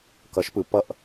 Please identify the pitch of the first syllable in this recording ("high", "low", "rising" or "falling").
rising